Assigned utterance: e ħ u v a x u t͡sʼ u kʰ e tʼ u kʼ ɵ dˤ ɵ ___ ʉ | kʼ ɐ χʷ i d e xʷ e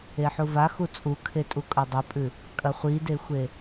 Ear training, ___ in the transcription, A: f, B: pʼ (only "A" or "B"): B